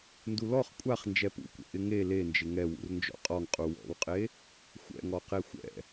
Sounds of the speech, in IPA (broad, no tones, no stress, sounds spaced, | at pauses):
n d u l ɔ χ kʷʼ a χ n d͡ʒ ɛ p ṵ kʷ ɛ̰ ʔ ɪ ŋ e l e n d͡ʒ ɪ ŋ ɛ w ṵ r n d͡ʒ ɔ̰ qʼ ɔ ŋ qʼ u w ɔ̰ w qʼ e | xʷ ɛ̰ ŋ ɔ q e xʷ ɛ̰